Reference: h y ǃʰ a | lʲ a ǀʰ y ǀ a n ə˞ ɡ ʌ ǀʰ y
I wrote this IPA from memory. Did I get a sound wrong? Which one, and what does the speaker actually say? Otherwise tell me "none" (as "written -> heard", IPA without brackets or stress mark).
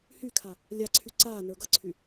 ǃʰ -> kʰ